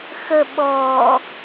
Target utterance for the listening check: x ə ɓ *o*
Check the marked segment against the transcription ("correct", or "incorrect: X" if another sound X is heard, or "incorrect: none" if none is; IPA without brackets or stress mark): incorrect: ɔ